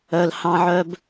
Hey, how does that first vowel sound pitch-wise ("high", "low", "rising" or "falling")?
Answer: low